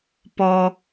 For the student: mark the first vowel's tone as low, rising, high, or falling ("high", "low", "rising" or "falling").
high